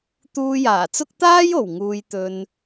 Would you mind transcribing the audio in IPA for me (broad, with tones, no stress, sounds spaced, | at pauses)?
t̪ uː˧ j aː˨˩ t͡s ʊ˥ k̚ t̪ aː˥ j o˨˩ w ŋ uː˧ j t̪ ɵ˧ n